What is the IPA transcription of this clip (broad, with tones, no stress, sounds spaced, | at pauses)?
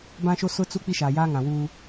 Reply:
b ã˦ ʃ o˦ s ʊ˦ t͡s u˦ k͡p i˦ ʃ aː˨ j aː˦ ŋ ã˨ w uː˦